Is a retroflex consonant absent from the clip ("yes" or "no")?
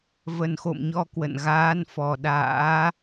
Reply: yes